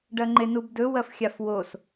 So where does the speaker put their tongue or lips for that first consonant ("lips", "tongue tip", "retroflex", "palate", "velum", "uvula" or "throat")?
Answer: retroflex